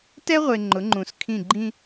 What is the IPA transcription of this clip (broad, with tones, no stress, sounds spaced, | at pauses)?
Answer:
t ɛ˦ ʁʷ e˨ ŋ͡ǃ ʊ˨˦ ŋ͡ǃ ũ˨ s kʰ ĩ˦˨ ɡ͡ǃ ĩ˦